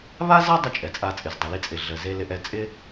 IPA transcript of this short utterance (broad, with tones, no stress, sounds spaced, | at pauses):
β a˥ z a˥ dˤ ɪ˥ t͡ʃʼ ɛ˩ t͡sʼ a˧ t͡sʼ ɪ˩ z dˤ i˩ l i˧ t͡sʼ ɪ˩ ɮ ə˩ z e˧ l ɪ˧ ʔ ɛ˧ t͡sʼ ɪ˥